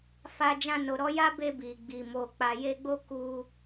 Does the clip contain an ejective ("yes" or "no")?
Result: no